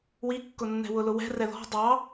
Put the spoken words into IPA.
wikːʊ nːɛ̤wʊlʊwɛ̤ rɛðɔ̤ dˤɑ

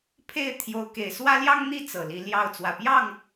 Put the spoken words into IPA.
pʰe˥˨ɪ̯t̪ʰjo˨˦ʊ̯ ke˨˩ɪ̯swä˦ljɑ˦ŋ n̪i˦ t͡sɤ˨˩li˨˦ljɑ˥˨ʊ̯ t͡swä˨˩pjɑ˥˨ŋ

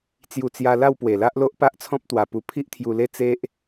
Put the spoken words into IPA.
t͡sju˧t͡sja˧ la˥˧wpwe˨˩la˦ʔlo˦ʔ pa˦ʔt͡sʰɔ̃˦p̚t̪wa˨˩ pu˧pʰi˦ʔt̪ʰju˧le˦ t͡se˦ʔ

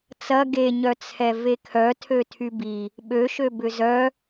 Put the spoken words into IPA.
t͡sɐ ɡeɲœt͡sʰɛ vekʰœ tʰøtʰybi | ɓøʃø bʏzœ

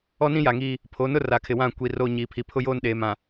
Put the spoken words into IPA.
ɔ˦nĩ˦ja˨ŋiː˦ | pʰo˨˦nʊ˦ ra˨kʰɪ˨wã˦˨kʷi˨ roː˦ ɲiː˨ pʰi˨pʰʊ˦joː˦nɗeː˨ mã˨

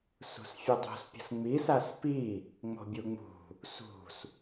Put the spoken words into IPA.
sṳsfʲɨdˤo̤spʲə̤s ŋ͡misas pi | ŋ͡mo̤bʲuŋ͡mṳ | sṳs

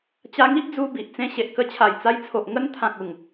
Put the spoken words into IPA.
t͡ɕa˧ŋi˦ʔd͡zu˧ bi˨ʔ t͡sẽ˧ɕe˨ʔkə˧ t͡ɕʰa˨˩jt͡sa˧jt͡sʰo˨ʔ ŋə˧nt̪ʰã˨k̚ u˨˩ŋ

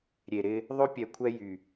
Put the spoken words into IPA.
ɾʲe˨ɾɪ˦ | ðˤø˦pʲɛ˨ kʷʰɛ˦jy˨

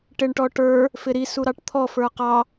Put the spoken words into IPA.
ʈɪɳʈɔʈə˞ | fɪɾi suɾɑʈt̪ʰɔ fə˞qɑ

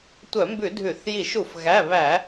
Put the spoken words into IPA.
tʷœ˧˩˧mbʉ˧˩˧ dʱʉ˧˩˧θ ji˧˩˧ʃu˧˩˧f ɣæ˩˧˩βæ˧˩˧

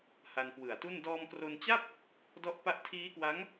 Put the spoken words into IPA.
ha˧nkwɯ˨˩a̯tu˥˩n dɔː˧mkro˧nt͡ɕa˥˩p̚ | dɔ˦˥ʔpa˦˥ʔ tʰiː˦˥kwa˦˥ŋ

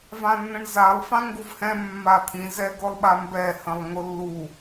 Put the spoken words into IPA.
vãnːə̃ɳzalˠ fãŋɡuvhɛ̃ mːat̪ʰĩ zɛɡʊlˠɓambɛ hə̃lˠŋʊlːu

